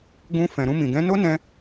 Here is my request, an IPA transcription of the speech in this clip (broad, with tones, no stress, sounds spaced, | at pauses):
ɡ ũ˧ f ɛ̃˨ ɾ ũ˧ m ĩ˨ ɡ ɛ̃˨˦ n o˦ n ɛ̃˧